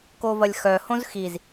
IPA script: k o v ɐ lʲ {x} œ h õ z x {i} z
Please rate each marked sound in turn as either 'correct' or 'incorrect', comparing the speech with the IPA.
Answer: correct, correct

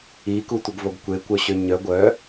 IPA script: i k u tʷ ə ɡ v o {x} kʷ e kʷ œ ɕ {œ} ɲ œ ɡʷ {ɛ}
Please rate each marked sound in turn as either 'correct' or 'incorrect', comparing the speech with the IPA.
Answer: incorrect: ɡ, incorrect: ø, incorrect: œ

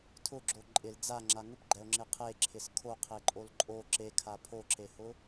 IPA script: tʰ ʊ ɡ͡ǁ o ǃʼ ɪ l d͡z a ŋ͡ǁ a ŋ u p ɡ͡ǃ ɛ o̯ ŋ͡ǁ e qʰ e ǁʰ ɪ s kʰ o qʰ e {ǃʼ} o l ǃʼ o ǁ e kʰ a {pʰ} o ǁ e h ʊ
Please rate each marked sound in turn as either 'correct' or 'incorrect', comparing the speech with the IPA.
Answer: correct, correct

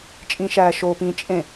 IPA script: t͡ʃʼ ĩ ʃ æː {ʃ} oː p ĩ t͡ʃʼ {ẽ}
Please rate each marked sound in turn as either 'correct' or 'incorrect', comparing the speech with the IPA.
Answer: correct, correct

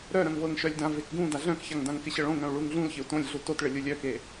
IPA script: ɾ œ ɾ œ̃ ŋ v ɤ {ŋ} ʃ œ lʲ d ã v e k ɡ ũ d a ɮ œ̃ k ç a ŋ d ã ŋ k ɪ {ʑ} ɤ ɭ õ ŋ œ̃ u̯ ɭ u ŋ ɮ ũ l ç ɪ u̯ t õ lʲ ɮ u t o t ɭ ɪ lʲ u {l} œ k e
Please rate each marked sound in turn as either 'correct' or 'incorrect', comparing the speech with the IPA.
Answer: correct, incorrect: ɕ, incorrect: lʲ

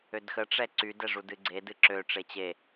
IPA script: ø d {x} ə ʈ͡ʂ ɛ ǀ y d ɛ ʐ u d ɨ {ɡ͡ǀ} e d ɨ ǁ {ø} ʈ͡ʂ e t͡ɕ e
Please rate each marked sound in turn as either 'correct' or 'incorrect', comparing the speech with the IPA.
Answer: correct, correct, correct

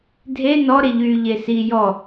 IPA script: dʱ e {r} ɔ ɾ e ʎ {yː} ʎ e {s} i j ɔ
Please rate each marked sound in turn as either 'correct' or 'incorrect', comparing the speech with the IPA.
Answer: incorrect: n, correct, correct

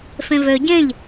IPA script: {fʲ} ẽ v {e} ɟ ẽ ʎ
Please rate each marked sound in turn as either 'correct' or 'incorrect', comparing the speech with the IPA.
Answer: incorrect: f, incorrect: ø

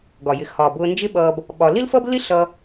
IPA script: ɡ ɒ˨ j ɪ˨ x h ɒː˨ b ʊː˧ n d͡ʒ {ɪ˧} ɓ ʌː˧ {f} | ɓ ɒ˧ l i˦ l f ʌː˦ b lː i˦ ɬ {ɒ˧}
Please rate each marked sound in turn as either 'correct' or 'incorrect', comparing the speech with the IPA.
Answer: incorrect: ɪ˦, incorrect: b, incorrect: ʌ˧

